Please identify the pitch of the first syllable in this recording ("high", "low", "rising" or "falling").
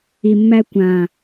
low